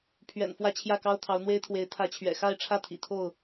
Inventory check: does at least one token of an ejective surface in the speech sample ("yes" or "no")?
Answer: no